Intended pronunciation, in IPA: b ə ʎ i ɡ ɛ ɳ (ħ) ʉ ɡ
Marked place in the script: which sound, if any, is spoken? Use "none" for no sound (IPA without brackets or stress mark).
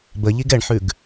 ħ